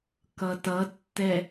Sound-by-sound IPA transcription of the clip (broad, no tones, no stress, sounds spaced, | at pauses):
k ʌ t ʌ tː ɛ